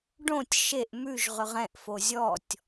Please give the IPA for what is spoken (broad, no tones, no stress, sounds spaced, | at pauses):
ɖ õ tʲ ʃ e ʔ m ʉ ʒ ʁ ʏ ʁ ɛ̃ ʔ f o zʲ ɔ tʲ